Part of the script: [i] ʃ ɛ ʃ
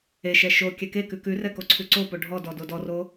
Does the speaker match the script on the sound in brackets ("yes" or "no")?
no